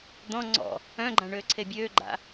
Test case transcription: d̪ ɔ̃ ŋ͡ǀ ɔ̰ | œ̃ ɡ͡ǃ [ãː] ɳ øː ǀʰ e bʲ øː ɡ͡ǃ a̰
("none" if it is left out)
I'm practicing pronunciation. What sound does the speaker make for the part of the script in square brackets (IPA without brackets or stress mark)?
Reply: ã